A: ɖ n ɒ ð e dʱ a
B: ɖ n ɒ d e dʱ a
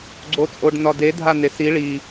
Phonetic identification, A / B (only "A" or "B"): B